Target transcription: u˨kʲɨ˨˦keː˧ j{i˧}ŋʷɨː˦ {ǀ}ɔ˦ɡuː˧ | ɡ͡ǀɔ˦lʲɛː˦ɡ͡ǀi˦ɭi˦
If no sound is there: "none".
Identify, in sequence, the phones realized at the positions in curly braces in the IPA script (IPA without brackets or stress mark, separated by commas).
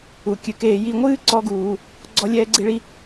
i˧, ǀ